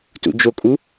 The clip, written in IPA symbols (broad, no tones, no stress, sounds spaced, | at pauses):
t ṵ d͡ʒ o kʼ u